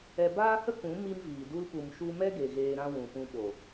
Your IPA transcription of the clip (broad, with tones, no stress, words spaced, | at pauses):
ɛ˧baː˦hə˦kũ˨˦ mi˦mviː˨ du˧l pu˨mʃu˧mɛ˦ɡe˨ ɣeː˧ɾã˦ wũ˨pũ˧ɓo˨